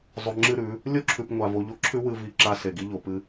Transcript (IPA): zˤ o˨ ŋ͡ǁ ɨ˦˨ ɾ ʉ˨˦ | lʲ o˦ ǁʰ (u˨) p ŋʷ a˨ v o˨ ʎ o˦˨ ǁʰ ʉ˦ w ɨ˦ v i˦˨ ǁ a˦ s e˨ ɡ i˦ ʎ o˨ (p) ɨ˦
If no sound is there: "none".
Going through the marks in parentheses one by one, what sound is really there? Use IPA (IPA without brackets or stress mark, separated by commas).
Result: ʉ˨, p